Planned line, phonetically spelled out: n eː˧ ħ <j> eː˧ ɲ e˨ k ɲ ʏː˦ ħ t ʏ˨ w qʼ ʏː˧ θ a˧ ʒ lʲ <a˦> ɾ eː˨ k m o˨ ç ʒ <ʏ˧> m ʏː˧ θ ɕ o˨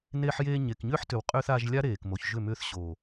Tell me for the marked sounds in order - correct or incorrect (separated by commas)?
correct, correct, incorrect